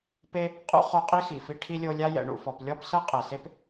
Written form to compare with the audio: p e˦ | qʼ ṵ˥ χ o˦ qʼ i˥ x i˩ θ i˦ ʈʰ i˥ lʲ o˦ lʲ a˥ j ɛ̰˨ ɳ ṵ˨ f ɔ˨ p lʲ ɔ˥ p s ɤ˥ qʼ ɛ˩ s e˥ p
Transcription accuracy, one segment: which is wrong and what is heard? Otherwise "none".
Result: θ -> f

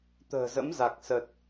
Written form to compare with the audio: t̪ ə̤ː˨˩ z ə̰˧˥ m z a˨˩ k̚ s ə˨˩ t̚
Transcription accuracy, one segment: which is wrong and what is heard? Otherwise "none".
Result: none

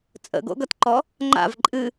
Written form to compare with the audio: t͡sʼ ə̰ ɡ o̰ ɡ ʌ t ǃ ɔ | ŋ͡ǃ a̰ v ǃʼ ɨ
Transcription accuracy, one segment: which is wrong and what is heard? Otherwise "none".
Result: none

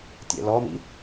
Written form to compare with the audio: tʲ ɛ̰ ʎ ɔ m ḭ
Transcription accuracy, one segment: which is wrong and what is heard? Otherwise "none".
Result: ʎ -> l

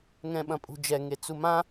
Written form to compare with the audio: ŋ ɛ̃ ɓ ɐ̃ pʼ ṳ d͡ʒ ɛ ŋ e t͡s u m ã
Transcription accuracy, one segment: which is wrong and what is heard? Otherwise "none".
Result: none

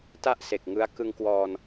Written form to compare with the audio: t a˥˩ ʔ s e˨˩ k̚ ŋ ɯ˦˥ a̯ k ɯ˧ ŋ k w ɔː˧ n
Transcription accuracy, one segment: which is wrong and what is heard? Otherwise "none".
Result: none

